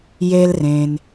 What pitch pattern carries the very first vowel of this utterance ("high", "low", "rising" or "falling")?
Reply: high